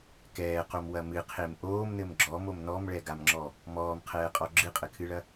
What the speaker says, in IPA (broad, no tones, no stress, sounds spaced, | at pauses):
k ɛː q o m w ɐ m ɨ qʰ e m ʔ oː m n ɘ m ɡ͡ǁ ɔ m o m n ɔ m ɭ ɛ ɡ a m ŋ͡ǁ ɔ | m ɔː m qʰ ɛː qʼ ɔ ɡ͡ǁ ɨ qʼ ɘ kʰ ɨ ɭ ɐ